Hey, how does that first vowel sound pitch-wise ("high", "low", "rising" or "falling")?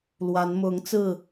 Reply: rising